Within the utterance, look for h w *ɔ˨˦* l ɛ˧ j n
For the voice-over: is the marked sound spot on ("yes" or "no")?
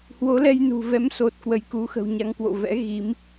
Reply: no